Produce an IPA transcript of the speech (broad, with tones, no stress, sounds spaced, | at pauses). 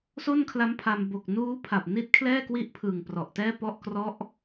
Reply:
s o˥˩ n kʰ l a˦˥ m pʰ a˧ m b o˨˩ k̚ n uː˦˥ pʰ a˨˩ p̚ n i˦˥ t̚ kʰ l ɛː˥˩ k w i˦˥ ʔ pʰ ɯː˨˩ ŋ p r ɔ˨˩ ʔ t ɛː˥˩ p ɔ˥˩ ʔ k r ɔ˦˥ ʔ